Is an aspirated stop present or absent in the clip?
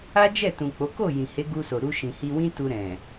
absent